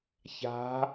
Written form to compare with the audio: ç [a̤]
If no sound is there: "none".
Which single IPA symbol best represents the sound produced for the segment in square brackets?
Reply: a̤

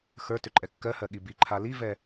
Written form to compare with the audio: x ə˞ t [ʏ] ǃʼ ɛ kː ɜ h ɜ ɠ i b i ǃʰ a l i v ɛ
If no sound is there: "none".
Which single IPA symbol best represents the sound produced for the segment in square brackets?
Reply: ʏ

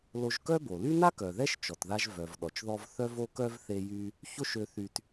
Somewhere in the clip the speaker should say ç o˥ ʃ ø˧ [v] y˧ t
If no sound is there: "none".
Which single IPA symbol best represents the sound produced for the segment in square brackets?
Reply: θ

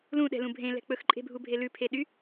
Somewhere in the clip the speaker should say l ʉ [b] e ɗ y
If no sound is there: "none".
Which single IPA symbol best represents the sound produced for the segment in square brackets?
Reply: pʰ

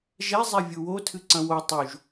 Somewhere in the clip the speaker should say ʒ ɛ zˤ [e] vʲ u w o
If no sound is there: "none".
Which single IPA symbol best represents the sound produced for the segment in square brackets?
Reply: ɛ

